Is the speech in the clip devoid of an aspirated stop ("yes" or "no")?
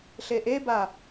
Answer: yes